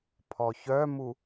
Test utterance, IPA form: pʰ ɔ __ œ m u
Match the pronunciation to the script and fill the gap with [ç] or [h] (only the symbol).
ç